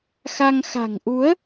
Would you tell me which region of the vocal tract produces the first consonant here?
velum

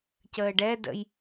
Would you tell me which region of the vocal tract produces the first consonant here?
palate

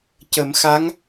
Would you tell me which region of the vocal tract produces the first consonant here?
palate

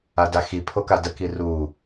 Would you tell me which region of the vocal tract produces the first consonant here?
tongue tip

